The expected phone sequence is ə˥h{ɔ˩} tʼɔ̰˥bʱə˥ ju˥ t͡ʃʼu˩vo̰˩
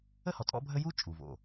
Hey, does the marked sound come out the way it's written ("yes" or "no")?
yes